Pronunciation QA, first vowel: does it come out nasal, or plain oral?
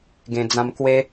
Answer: nasal